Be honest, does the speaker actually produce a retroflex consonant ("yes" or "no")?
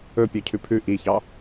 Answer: no